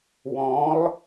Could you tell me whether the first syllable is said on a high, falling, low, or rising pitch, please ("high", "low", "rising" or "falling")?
rising